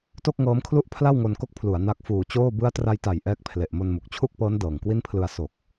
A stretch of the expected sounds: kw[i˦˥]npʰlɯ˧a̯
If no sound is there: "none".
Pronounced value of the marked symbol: i˥˩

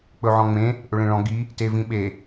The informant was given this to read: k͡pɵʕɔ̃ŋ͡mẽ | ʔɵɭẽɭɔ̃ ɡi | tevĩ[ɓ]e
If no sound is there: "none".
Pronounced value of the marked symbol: ɓ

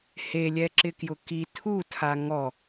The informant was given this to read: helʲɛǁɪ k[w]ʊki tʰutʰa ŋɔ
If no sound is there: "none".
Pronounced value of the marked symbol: j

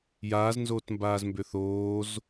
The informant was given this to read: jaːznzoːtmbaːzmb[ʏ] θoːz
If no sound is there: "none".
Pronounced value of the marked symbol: ʏ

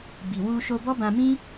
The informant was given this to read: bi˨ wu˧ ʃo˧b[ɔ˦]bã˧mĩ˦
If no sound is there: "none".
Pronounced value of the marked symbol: ɔ˦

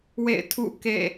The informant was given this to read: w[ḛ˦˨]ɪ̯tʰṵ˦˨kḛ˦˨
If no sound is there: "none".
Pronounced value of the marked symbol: ḛ˦˨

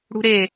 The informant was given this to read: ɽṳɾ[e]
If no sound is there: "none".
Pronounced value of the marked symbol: e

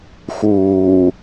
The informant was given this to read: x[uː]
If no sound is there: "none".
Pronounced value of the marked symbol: uː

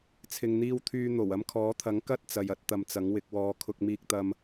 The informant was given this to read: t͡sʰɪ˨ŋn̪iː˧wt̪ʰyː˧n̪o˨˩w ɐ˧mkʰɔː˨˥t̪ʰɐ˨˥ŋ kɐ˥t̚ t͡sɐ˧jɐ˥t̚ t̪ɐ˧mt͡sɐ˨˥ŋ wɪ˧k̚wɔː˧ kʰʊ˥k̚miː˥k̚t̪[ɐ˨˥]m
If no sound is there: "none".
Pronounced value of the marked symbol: ɐ˥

